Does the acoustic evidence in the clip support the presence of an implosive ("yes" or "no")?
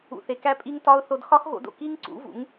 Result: no